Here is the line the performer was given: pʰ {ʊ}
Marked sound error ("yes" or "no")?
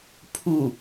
yes